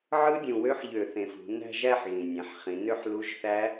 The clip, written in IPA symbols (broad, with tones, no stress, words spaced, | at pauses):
ʕɯ˦˥dʲũ˨˩wø˦˥ħ ʎø˧˩˧θẽ˨˩fṳ˩˧ næ̤˥˧ʒ æ˥˧ħ ɣĩ˨˩nʲæ̃˩˧ħχĩ˩˧ nø˥˧ħlu˧˥˧ʒθæ˦˥